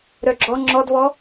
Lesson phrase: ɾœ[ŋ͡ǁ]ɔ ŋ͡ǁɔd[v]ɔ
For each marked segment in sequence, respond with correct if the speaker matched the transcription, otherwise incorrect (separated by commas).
incorrect, correct